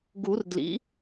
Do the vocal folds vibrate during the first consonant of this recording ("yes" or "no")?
yes